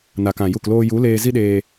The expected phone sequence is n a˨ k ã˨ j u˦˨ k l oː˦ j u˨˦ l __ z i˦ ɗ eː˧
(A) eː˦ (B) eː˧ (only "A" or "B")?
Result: B